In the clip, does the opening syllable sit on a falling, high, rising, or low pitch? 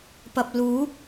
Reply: low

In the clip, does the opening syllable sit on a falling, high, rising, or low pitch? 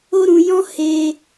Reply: high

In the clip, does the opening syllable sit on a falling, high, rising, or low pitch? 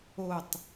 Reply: falling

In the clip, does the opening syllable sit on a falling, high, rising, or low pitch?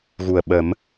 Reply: low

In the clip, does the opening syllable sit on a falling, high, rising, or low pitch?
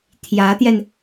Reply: rising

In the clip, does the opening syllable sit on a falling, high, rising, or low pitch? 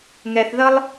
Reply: low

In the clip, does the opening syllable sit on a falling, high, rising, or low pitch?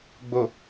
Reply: low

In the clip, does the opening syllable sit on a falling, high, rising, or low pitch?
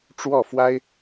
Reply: falling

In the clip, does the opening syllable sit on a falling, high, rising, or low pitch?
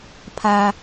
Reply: high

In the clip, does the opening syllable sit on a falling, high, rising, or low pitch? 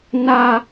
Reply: high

